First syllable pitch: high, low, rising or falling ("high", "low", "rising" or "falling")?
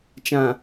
low